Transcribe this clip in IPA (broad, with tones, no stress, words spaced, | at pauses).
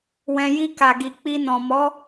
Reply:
wɛ̃˨ji˧ ka˨ɡi˨ k͡pi˧nɔ̃˨ mɔ˨˦